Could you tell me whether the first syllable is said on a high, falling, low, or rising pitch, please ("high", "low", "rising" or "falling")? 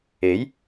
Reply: rising